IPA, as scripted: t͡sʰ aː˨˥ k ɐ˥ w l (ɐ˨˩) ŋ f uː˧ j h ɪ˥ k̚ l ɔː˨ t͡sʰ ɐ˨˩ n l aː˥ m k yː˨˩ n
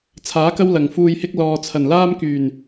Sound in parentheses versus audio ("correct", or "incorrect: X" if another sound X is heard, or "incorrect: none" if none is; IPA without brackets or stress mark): correct